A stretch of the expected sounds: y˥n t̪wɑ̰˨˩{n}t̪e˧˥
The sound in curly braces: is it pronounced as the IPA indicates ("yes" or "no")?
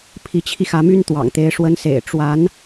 no